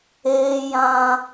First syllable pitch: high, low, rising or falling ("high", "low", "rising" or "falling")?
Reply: high